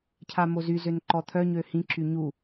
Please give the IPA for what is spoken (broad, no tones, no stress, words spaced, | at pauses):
cʰamozy zønǃɔt̪ʰœ ɲøhĩ ǁyɲu